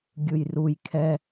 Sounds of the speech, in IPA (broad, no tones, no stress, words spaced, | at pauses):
ɡʲɯjruj kʰɛ